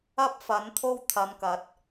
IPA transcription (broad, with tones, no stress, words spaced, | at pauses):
ɐ˥p̚fɐ˨˥nt̪ʰo˥wt̪ʰɐ˨˧m kɐ˨˥t̚